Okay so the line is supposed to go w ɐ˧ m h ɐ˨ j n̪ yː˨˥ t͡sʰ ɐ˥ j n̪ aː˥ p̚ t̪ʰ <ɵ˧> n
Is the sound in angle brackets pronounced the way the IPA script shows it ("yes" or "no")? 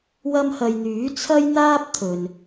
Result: no